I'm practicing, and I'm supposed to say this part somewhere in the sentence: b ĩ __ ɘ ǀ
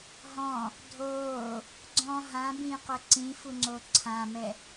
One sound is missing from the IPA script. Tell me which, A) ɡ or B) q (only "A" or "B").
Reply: B